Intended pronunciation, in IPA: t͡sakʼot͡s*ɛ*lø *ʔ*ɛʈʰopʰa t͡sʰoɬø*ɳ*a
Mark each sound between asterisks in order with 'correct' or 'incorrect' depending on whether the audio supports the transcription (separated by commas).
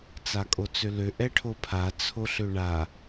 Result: incorrect, correct, correct